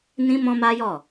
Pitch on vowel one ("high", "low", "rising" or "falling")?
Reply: high